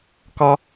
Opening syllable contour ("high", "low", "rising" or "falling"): high